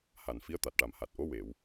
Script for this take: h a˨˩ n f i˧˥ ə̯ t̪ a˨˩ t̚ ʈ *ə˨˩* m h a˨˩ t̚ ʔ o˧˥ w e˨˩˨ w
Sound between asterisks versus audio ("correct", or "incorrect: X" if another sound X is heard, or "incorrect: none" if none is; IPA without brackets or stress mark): incorrect: a˨˩